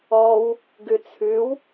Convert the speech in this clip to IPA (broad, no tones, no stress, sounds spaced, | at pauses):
ɔ w | ɡ ʉ t͡sʰ ʉ w